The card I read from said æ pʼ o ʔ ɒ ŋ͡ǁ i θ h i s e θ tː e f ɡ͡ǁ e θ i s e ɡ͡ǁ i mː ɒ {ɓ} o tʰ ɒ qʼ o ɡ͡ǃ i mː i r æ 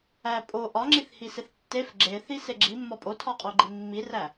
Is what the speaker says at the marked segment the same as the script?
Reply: no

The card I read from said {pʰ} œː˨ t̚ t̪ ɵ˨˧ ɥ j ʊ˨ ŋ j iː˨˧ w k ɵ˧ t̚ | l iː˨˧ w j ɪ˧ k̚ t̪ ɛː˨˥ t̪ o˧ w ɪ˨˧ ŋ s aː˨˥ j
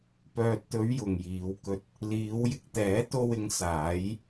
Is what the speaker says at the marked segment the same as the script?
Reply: no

